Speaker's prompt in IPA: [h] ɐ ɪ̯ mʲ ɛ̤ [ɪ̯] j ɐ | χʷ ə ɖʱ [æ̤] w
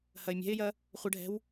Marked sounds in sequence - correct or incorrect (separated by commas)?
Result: correct, correct, incorrect